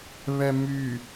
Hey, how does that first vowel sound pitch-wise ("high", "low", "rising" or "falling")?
low